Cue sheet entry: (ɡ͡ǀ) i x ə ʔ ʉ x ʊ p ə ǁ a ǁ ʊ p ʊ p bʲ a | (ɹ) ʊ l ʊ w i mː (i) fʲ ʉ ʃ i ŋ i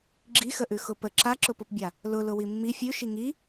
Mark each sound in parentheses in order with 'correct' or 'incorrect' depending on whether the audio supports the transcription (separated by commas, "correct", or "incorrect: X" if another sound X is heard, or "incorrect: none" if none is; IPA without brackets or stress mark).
incorrect: ɡ͡ǁ, incorrect: l, correct